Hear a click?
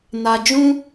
no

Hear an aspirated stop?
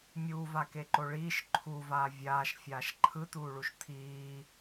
yes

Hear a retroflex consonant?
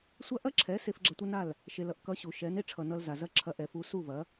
yes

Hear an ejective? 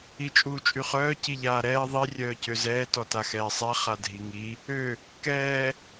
yes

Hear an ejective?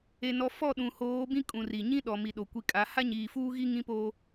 yes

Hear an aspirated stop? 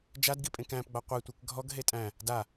no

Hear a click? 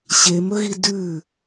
no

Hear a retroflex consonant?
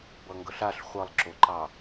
no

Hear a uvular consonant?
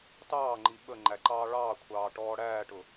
no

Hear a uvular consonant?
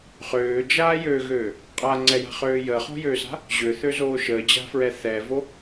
yes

